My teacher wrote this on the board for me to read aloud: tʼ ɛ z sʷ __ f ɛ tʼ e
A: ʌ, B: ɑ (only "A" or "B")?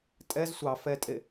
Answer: B